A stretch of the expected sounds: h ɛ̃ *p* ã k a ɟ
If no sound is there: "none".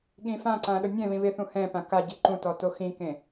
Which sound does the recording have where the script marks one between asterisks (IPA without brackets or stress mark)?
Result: p